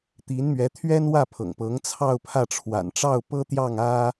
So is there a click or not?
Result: no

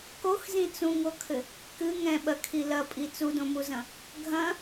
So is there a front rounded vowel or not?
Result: no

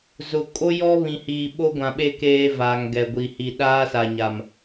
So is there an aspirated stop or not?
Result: no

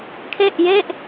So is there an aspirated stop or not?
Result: yes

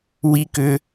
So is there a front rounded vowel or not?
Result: yes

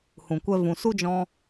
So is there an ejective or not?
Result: no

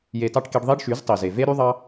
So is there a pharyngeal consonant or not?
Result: no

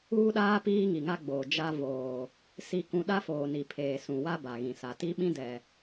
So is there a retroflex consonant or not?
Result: no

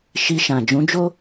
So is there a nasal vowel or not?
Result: yes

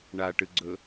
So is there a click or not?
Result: yes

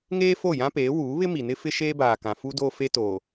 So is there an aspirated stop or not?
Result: no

